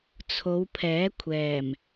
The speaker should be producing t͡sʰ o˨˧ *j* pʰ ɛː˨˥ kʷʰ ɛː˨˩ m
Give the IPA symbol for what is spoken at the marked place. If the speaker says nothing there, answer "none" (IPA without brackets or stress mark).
w